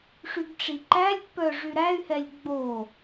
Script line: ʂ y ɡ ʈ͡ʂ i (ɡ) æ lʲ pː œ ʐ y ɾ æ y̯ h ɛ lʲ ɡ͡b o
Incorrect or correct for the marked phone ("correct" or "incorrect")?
incorrect